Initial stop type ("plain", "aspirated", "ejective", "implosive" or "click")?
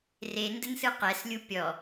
plain